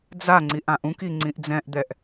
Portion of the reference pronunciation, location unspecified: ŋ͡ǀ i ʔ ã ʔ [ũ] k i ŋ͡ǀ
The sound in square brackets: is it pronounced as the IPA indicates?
yes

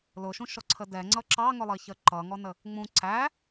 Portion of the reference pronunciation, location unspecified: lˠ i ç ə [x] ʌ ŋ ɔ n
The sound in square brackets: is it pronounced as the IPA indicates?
no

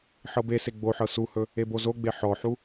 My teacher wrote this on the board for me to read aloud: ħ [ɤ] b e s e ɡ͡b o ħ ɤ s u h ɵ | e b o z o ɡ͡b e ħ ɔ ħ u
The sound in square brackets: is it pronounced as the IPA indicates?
yes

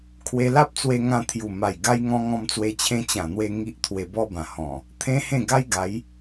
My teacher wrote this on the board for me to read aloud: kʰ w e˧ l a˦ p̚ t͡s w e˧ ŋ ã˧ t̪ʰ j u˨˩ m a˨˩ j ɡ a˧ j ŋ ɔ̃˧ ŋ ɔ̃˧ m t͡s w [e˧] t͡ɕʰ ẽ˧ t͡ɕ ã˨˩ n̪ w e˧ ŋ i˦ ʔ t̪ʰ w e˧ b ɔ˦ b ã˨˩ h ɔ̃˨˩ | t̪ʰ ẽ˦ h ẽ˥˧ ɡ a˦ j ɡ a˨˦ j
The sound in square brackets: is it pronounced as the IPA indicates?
yes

